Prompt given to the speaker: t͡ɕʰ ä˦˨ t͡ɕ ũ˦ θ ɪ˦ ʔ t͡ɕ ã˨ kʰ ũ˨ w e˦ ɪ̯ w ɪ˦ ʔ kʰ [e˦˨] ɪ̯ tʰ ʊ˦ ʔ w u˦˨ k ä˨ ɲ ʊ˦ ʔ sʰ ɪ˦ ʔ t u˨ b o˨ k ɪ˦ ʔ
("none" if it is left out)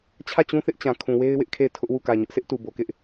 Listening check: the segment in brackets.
e˦˨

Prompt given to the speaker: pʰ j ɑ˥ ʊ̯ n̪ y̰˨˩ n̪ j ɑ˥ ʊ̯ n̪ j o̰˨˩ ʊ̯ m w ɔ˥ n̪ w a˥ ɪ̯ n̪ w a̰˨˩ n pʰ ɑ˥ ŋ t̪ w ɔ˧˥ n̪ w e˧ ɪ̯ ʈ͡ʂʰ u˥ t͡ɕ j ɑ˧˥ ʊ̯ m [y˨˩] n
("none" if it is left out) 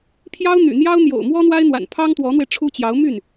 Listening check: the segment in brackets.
y˥˩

